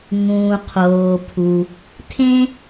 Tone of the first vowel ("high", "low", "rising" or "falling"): low